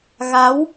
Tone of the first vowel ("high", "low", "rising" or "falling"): rising